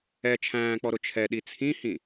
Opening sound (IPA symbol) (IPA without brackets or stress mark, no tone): ɛ